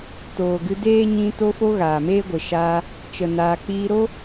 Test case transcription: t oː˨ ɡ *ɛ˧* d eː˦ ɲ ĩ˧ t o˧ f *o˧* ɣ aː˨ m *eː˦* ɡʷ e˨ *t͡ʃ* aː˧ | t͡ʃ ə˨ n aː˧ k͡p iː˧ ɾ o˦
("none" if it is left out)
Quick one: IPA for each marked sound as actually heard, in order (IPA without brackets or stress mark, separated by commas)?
ɨ˧, o˧, eː˦, ʃ